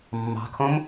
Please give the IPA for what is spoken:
mː ɑ̤ kʰ õ m

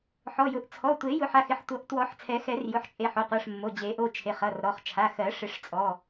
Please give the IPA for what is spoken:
ħ ɔ˩˧˩ j ʊ˨˩˦ ʔ t͡sʰ ɔ˩˧˩ tʷ e˨˩˦ j ʊ˨˩˦ ħ a˩˧˩ x ɪ˩˧˩ ħ tʷ ʌ˨˩˦ ʔ t w ɔ˨˩˦ ħ t͡sʰ ɛ˨˩˦ x ɛ˨˩˦ r j ʊ˩˧˩ ħ t͡ʃʼ e˩˧˩ ħ o˩˧˩ qʷ ɜ˩˧˩ ʂ mː o˩˧˩ d͡ʑ e˨˩˦ ʔ o˩˧˩ t͡ʃʰ e˩˧˩ χ ʌ˩˧˩ r ɾ ɔ˩˧˩ χ t͡ʃʰ a˩˧˩ x ɜ˨˩˦ ʂ ɪ˨˩˦ ʂ t͡sʼ ɔ˩˧˩

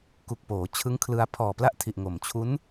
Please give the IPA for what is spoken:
k u˨˩ k̚ p oː˩˦ t͡ɕʰ ɯ˦˥ ŋ kʰ l ɯ˧ a̯ pʰ ɔː˨˩ p l a˥˩ ʔ tʰ i˨˩ ʔ ŋ o˨˩ m t͡ɕʰ u˦˥ n

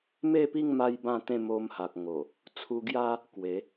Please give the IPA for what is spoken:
m e˥˧ p i˥˧ ŋ m a˦ j b ã˥˧ t̪ ẽ˥˧ m o˧ m h a˨ k̚ ŋ o˨˩ | t͡sʰ u˧ ɡ j a˦ | k w e˨˦

